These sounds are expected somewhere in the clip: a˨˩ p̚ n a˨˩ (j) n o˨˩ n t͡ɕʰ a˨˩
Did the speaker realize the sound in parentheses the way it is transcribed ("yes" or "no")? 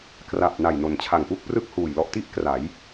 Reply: yes